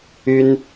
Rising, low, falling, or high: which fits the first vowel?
high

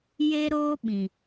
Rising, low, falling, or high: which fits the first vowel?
high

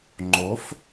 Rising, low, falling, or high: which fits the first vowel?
rising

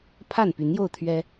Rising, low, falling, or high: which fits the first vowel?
falling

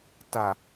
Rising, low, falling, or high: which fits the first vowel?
low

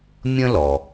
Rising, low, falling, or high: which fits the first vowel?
high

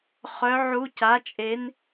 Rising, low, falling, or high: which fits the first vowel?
rising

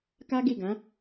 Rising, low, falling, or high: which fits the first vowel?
high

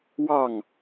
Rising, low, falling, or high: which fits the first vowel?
falling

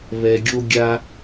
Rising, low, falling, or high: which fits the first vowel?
low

